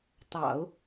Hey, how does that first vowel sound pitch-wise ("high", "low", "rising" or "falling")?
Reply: low